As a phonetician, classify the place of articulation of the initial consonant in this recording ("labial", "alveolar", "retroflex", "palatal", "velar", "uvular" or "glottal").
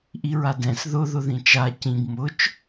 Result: glottal